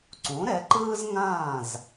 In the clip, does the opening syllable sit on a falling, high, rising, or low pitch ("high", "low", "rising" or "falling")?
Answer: rising